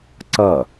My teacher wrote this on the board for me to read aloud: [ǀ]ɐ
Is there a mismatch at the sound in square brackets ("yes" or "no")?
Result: no